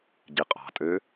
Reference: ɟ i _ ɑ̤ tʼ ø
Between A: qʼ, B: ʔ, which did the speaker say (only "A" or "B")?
A